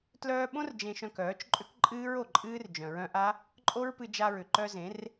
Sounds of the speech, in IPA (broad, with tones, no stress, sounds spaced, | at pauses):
t l œː˧ ɓ õ˦ r d͡ʒ ẽ˧ ʃ œ̃˧ k œː˨˦ t͡ʃ ǃʼ ʏ˦ k ǃʼ ɨː˦ ɹ o˨ ǃʼ ɨː˦ r d͡ʒ œ̃˨ ɹ œ̃˧ ʔ a˦ | ǃʼ o˦ ɹ p ɨ˧ d͡ʒ a˧ ɹ ʏ˨ ǃ œ˧ z ẽ˨˦ r